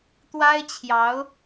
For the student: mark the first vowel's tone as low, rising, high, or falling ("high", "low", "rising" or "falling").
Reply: high